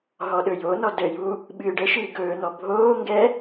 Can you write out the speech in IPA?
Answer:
ɦɔɗɵjonɔ dəju | ɓɨːɖəʃɨː ɡɵːn̪ɔ bʱoːŋɡɛ

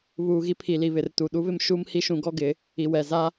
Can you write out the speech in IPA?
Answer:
βuː˨ɣi˦pʰi˨ li˨βɪ˨rtu˨ ɗu˦βɪ˦m ʃu˦mhi˦ʃũ˨˦ ɡɔ˦ɡɪ˨˦ | i˨wɛ˨ za˦

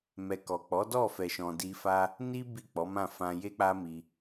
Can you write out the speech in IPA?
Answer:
mɛ˨ kɔ˨k͡pɔ˨˦ dɔ˦˨fɛ˨ʃɔ̃˨ di˧fa˦ | ni˦ bi˦˨k͡pɔ˨˦mã˦˨ fã˧je˦k͡pa˦mi˧

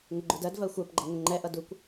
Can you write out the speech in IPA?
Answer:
ŋɪɡ͡ǃudɜdvɜ xʷɜpɡ͡ǃʌ ŋʊŋ͡ǃɛʔʌ dukʷ

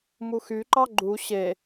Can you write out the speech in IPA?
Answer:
muxyǃɑ ɡ͡ǃu ɕe

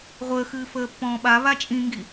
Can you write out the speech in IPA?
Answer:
ʁʷəːxɨːfəːpːɔ̃ː ɓaβa t͡ʃʼĩŋɡi

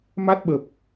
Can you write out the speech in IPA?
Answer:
ma˦˥t̚ɓə˨˩p̚

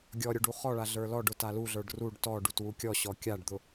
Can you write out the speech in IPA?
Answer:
ɡʲɔɾʲʊ ɖuχɔɭa ɮə˞lɔɖʊ taluɮə˞ɖ ruɖ tɔ ɖutwukʲɔɕɔ kʲaɖd̪ʊ

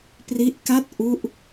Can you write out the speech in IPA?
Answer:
pri˦˥ʔka˥˩t̚ ʔu˥˩ʔ

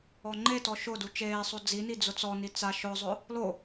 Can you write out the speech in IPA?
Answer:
ɔŋ͡ǃetɔ ʃʊ dut͡ʃeːsˤo d͡zini d͡zʊt͡sɔni t͡sa ʃʊzˤʊ | lo

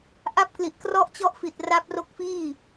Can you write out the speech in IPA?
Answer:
ʔa˥˩p̚kli˨˩ʔ krɔ˦˥ʔt͡ɕɔ˦˥ʔ fi˨˩t̚ra˦˥p̚ro˦˥k̚fiː˥˩

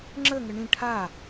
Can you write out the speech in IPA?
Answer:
ŋ͡ǁəŋə ɳĩ ʈʰa

